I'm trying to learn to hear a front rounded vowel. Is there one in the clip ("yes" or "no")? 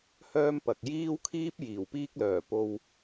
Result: yes